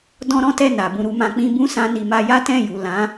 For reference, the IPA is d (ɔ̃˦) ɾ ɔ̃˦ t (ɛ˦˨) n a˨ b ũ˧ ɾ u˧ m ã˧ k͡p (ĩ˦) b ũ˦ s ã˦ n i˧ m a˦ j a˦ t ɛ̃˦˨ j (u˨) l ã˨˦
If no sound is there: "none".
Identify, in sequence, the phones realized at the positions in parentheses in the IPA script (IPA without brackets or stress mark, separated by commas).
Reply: ɔ̃˦, ɛ˦˨, ĩ˦, u˨